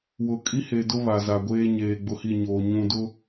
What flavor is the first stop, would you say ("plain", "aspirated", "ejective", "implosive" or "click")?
ejective